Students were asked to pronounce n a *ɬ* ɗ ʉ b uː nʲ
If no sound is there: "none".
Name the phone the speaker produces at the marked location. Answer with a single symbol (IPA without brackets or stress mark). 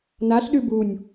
ɬ